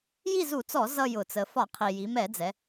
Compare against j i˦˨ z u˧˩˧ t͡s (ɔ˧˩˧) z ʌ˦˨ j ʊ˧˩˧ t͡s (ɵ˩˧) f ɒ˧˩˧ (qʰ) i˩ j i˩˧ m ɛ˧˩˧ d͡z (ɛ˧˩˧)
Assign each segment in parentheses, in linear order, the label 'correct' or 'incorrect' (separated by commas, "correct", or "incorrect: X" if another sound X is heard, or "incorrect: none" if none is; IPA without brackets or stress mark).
correct, incorrect: ə˩˧, correct, incorrect: ɛ˩˧